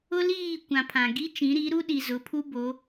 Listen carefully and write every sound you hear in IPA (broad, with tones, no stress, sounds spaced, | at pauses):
ʊ˦ l iː˦˨ kʷ ã˨ pʰ ã˨ ɡ i˦ t͡ʃ ĩ˨˦ ɾ i˨˦ ɾ u˦ ɗ i˨ z ʊ˨˦ pʰ u˦ b o˨˦